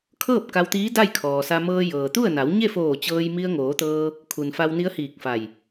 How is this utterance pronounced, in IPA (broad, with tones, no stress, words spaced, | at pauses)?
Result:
kʰɤː˥˨p̚ ka˧wt̪iː˧˥ da˥˨jkʰɔː˩sa˧ mɤː˧jɤː˩t̪u˥˨ə̯ na˩˧wɲe˥˨foː˧˩ t͡ɕɤː˧jmi˧ə̯ ŋoː˩˧t̪ɤː˧ | kʰu˩nfa˧wni˧˥ə̯ hiː˧˩k̚fa˧˩j